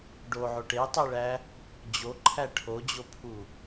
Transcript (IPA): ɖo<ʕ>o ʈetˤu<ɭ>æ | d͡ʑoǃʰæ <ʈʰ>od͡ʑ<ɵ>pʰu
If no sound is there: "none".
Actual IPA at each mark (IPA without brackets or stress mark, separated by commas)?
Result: ʕ, ɭ, ʈʰ, o